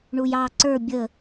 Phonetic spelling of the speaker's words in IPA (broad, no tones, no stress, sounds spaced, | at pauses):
ɳ u j ɑ ǀ ə˞ bʲ ə